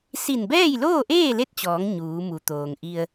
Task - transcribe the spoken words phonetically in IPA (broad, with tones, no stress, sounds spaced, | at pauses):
s i˧˩ n b ɛː˥˨ j l oː˥˨ ʔ eː˥˨ l e˥˨ t̚ t͡ɕ ɔː˩˧ ŋ ɲ uː˩˧ m u˩˧ t̪ oː˩ ŋ ʔ i˧ ə̯